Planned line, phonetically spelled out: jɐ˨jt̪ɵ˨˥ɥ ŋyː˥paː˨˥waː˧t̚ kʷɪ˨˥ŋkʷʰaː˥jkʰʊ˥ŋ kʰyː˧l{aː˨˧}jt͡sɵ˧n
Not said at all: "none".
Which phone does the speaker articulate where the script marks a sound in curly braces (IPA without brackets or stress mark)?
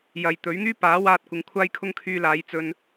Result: aː˨˧